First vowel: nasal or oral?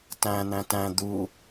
nasal